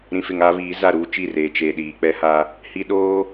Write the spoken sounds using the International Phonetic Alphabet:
ɾĩ˨fɪ˨ŋaː˦βiː˨˦ za˦˨ɾuː˦t͡ʃi˦˨ reː˨t͡ʃe˨ɗiː˨ k͡pɛ˦ha˦ | hi˦ ɗoː˦

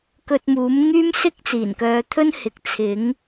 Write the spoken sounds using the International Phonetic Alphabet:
kɵ˧t̚muː˨˥mŋyː˥m sɪ˥k̚t͡siː˨˩nkœː˨˧t̪ʰɵ˥n hɪ˨k̚t͡sʰɪ˨˥ŋ

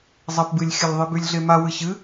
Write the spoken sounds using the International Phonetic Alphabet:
zˤɐp bɨlʲxʲɐlʲ ðˤebʉlʲɮema wɨɕɨ

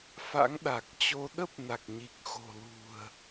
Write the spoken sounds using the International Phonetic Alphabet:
fa̰˧˥ŋɗa˨˩k̚t͡ɕo˧ ɗə˦˥p̚ na˨˩k̚ɲi˨˩k̚ xo̤˨˩lṳ˨˩ə̯

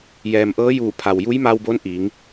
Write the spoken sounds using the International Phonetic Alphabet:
jɛː˩mʔɤː˧˥juː˧˩pʰa˩w ju˧˥jma˧wbo˧˥n ʔiː˩˧ŋ

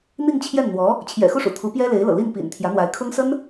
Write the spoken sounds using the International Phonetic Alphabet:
n̪i˥˧ŋt͡ɕʰjɛ˥˩nn̪wɔ˧˥ | t͡ɕʰjɛ̰˨˩xu˥˩ʂṵ˨˩ t̪ʰu˧˥pjɛ˥ le˧˥ɪ̯lɤ̰˨˩ li˥˩npḭ˨˩n t̪ʰjä˧˥n̪wa˧˥ɪ̯ kʰʊ˥ŋsə˥n

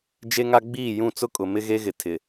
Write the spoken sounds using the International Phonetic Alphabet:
d͡ʒe˦ŋa˦ ɡ͡biː˦˨jũ˦˨t͡sʊ˦kʼʊ˨ mɪ˦ɣe˦ɣɪ˨ tʰɪ˨

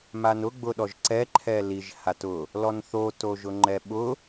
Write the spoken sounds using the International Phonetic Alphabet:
manʊ ɡ͡bʊɗɔʒǀɛ ǃʰɛliʒ hatʊ | lɔnθo toʒʊŋ͡ǃɛɓʊ

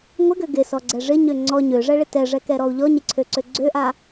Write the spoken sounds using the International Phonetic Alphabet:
ŋʷɪɡø ɡɪsɔɡ͡ǀɛ ʐɪɲø ŋ͡ǀɔ ɲøʐɛɭɪ tɛʐɛkɛɾɔu̯ ʎɔɲɪǀʰøǀø ɡ͡ǀøʔa

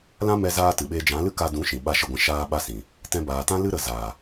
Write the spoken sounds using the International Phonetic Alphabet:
lã˦mɛ˧zaː˧ tɨ˨ɓeː˧ d͡ʒã˨˦lɨ˦ ka˧dũ˨˦ ʃĩ˨ɓa˦˨ʃə˦˨ɡʷɛ̃˧ ʃaː˧ɓa˧sĩ˨ | tɛ̃˧baː˨tã˦lɨ˦ ɾə˨zaː˨

